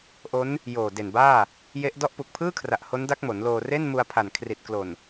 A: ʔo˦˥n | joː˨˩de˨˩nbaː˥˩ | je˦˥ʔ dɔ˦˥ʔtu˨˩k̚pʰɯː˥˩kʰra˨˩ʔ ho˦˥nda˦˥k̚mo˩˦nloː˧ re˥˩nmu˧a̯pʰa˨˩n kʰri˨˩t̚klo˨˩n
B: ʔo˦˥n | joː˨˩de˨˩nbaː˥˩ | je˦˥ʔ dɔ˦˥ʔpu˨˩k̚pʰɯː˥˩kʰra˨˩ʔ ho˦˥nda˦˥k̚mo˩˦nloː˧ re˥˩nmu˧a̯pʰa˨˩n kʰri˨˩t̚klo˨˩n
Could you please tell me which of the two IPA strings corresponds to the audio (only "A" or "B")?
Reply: B